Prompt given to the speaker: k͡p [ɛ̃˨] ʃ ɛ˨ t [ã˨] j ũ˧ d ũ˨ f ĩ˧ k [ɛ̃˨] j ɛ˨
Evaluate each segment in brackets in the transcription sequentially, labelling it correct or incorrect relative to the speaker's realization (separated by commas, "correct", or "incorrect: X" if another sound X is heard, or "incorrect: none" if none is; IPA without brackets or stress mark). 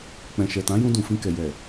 correct, incorrect: ã˨˦, incorrect: ɛ˨